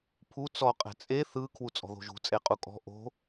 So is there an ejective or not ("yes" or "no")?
yes